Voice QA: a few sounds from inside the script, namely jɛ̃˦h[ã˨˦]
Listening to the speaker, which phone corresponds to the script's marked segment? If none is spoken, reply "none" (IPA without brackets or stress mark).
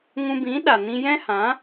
ã˨˦